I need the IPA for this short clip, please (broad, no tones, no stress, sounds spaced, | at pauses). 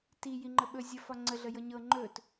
t i j i ŋ͡ǃ ə ɓ ɵ zʲ ə f ɒ ŋ͡ǀ ə ɮ ə j ɤ ɲ ɤ ŋ͡ǃ ɵ t